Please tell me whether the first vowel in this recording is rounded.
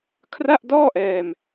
no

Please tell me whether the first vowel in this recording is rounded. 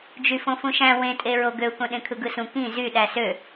yes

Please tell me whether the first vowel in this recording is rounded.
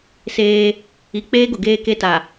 no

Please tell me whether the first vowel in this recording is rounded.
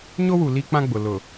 yes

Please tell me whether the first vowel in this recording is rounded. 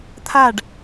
no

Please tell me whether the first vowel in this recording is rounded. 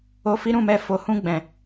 yes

